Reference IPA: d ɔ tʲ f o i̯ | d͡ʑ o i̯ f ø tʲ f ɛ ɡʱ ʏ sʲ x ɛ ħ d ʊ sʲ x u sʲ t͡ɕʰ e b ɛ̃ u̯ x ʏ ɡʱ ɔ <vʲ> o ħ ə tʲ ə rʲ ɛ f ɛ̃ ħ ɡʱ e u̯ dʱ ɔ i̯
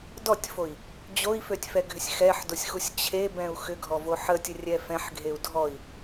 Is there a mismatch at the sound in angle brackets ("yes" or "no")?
yes